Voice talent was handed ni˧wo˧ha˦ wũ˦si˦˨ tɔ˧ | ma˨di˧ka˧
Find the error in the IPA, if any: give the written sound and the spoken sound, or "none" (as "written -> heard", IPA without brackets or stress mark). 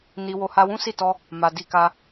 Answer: none